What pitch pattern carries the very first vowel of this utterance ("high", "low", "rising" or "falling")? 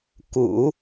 low